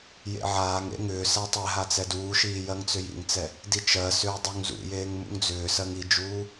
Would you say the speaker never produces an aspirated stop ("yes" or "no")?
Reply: yes